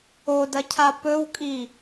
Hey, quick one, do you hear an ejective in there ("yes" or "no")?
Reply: yes